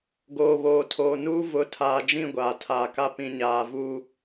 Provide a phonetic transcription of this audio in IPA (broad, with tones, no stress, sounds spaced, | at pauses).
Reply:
ɡ oː˨ β oː˨ tʰ oː˨ n uː˦ v ʊ˨˦ tʰ aː˨ d͡ʒ ĩ˦˨ ɡʷ aː˨ tʰ aː˨ k a˦ p ĩ˨ ɲ aː˨ v uː˦